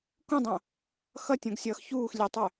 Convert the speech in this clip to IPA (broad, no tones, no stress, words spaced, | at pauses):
kũdˤõ | xʌtʲõɡsʲʌːx çuːx lʲetˤœ